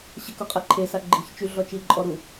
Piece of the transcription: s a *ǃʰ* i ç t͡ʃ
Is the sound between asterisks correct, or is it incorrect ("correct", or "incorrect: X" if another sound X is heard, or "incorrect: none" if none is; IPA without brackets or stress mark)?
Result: incorrect: ɡ͡ǃ